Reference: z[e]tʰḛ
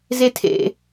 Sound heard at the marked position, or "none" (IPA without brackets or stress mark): e